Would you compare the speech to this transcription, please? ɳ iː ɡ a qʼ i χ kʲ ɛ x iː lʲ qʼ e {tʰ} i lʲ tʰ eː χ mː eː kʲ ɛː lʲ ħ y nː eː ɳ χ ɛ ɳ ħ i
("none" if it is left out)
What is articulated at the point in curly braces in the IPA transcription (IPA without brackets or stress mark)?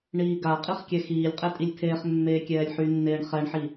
tʼ